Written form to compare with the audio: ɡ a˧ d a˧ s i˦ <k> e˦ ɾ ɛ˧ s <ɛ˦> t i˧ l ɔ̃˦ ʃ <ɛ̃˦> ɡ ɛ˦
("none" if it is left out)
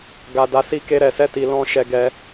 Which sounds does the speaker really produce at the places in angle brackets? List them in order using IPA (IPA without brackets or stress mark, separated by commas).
k, ɛ˦, ɛ˦